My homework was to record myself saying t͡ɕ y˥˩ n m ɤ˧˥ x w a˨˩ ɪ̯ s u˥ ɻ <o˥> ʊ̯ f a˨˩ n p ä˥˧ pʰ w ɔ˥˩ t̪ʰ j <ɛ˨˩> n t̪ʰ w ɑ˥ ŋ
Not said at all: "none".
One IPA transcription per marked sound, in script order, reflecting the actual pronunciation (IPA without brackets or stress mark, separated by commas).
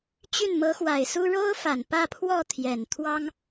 o˥, ɛ˨˩